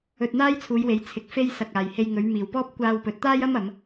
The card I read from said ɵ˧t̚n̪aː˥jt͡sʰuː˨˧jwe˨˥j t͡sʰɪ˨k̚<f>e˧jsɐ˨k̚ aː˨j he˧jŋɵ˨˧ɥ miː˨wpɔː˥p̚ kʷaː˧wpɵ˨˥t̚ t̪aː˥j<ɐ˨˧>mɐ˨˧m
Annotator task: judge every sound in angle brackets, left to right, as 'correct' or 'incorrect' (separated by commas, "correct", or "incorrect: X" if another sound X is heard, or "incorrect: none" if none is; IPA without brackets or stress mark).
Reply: correct, incorrect: ɐ˥